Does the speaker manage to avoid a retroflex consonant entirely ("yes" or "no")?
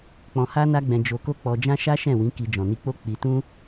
yes